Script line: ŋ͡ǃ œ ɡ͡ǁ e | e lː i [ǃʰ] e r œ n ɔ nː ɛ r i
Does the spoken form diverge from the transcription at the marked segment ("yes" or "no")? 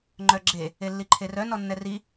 no